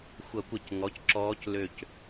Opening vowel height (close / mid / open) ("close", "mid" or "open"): mid